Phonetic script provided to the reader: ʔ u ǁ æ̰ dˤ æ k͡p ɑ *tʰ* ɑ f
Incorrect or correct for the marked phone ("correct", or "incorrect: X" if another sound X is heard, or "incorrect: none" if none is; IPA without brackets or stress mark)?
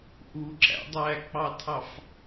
correct